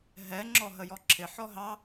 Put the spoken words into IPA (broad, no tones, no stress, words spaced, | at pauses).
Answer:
ɦɛ ŋ͡ǁɔɦəjɔǁʰɪ ħɔɦɑ